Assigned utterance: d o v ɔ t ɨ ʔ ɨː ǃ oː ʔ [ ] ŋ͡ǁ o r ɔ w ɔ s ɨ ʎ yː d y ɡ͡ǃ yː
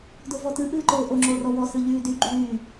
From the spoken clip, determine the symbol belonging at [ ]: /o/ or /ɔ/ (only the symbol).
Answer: o